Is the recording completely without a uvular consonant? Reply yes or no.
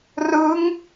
yes